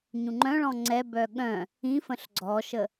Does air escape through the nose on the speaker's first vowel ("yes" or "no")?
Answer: yes